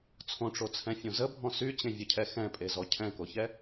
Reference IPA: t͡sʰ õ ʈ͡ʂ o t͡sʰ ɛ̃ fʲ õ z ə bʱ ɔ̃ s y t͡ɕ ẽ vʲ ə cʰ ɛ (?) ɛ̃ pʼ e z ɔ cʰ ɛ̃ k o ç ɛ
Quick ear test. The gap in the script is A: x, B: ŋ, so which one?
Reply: A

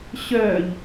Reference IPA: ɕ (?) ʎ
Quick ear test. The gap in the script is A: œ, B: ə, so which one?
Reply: A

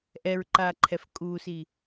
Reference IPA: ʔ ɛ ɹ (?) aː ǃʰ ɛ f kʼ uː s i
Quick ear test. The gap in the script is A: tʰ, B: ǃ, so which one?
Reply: B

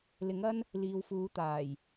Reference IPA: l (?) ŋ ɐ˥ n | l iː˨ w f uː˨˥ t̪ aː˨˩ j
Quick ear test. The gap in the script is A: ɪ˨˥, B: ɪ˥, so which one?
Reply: A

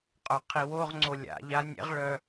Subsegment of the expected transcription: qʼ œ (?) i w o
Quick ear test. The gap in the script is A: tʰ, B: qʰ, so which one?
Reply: B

